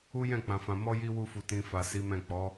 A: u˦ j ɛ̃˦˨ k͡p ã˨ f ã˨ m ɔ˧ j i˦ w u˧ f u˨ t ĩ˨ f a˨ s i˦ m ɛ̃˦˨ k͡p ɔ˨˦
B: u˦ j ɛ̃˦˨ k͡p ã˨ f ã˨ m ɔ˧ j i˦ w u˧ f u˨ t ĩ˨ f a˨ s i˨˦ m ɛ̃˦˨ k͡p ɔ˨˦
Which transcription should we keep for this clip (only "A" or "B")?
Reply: B